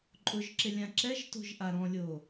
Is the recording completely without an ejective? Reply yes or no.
no